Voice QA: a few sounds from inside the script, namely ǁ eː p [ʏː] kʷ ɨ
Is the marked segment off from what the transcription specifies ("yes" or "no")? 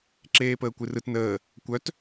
yes